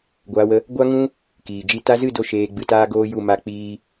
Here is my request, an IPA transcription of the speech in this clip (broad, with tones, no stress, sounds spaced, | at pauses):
ɡʷ aː˧ w ə˧ | ɡʷ a˦ ŋ ũ˦ | k iː˨ d͡ʒ i˧ t a˧ z ɨ˦˨ d o˦ ʃ eː˧ ɡ͡b ɨ˧ t aː˦ ɡ oː˦ j u˦˨ m a˦˨ k͡p iː˦